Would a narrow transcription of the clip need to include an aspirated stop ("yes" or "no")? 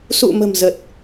no